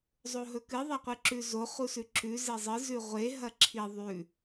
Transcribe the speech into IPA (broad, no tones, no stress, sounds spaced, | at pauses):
zˤ o ɦ ɵ k ɨ ðˤ a qʷ ɨ ǁ ʉ z o χ u s ʉ ǁ ʉ z e zˤ ɨ z ʉ ʁʷ e ɦ ɐ ǁʰ i ðˤ ʉ